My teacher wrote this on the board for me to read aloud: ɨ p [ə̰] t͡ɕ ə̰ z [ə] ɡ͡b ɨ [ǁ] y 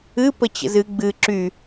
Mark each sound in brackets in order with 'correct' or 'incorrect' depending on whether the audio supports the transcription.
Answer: incorrect: ə, incorrect: ɨ, correct

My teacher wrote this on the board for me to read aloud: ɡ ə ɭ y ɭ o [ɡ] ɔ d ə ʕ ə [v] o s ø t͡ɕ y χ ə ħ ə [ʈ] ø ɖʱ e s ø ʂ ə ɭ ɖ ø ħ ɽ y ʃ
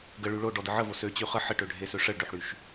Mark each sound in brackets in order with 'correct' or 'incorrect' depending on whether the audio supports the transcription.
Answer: incorrect: ɖ, correct, correct

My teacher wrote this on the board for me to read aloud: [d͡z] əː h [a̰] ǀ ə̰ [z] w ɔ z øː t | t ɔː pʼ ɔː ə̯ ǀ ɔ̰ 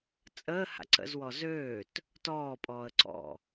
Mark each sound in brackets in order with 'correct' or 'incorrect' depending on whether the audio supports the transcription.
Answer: incorrect: t͡sʼ, correct, correct

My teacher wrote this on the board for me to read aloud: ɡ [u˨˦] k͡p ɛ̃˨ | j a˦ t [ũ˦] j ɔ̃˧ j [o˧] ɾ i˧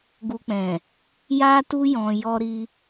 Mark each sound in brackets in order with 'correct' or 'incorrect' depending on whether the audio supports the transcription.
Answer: incorrect: u˧, incorrect: u˦, incorrect: ɔ˧

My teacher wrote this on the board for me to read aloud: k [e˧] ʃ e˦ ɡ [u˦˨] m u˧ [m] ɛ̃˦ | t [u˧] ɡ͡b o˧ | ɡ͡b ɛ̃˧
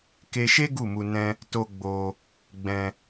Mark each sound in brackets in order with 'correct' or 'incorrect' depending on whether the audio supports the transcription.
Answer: correct, correct, incorrect: n, incorrect: o˧

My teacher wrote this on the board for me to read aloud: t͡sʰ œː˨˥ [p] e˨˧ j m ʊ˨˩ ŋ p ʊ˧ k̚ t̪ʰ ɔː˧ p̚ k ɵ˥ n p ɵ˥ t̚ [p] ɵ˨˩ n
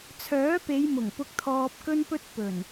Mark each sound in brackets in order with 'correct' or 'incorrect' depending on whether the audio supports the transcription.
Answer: correct, correct

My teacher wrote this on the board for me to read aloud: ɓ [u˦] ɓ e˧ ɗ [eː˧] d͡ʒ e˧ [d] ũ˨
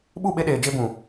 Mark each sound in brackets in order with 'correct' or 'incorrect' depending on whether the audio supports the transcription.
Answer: incorrect: u˦˨, incorrect: eː˨, incorrect: b

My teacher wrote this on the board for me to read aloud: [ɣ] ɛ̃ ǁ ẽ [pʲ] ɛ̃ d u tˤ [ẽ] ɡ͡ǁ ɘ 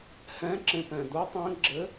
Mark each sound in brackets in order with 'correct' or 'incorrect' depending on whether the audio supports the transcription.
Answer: incorrect: h, incorrect: p, incorrect: ɛ̃

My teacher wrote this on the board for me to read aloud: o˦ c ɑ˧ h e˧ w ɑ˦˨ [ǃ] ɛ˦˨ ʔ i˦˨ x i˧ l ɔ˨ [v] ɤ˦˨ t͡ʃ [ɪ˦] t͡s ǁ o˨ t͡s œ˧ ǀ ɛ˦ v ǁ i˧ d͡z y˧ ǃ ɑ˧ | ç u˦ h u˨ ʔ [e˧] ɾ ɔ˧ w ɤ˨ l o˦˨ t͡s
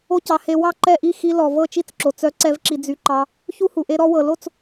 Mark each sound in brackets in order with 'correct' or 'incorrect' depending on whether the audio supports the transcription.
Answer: correct, correct, incorrect: i˦, correct

